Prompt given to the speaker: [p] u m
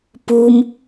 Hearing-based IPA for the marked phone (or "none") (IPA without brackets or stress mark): p